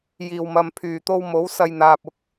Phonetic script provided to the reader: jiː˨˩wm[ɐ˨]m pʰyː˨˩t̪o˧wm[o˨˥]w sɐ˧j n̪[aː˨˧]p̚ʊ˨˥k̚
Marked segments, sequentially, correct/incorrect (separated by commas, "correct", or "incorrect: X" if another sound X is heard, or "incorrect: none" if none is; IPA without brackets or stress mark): correct, correct, incorrect: aː˨